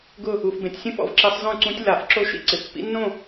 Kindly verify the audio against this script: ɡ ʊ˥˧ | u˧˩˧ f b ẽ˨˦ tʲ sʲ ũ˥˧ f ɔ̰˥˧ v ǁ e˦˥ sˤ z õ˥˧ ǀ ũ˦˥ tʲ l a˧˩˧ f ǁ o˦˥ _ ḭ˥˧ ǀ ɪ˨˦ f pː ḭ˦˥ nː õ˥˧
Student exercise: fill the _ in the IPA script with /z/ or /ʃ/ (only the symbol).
ʃ